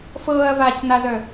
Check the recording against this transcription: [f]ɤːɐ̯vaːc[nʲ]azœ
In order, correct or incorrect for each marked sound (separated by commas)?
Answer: correct, incorrect